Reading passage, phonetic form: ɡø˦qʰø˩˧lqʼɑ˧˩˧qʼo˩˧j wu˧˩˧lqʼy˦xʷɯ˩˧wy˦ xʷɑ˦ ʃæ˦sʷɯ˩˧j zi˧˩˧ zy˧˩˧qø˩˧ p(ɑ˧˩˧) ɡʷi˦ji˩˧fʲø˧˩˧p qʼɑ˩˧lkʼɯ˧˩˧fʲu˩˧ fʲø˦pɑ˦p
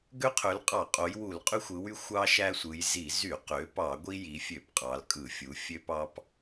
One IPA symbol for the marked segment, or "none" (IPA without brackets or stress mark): ɑ˧˩˧